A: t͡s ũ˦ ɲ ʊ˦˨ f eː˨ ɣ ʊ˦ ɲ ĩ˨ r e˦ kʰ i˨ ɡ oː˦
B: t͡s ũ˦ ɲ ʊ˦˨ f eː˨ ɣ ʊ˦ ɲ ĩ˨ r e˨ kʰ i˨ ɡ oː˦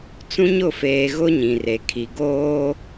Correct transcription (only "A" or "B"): B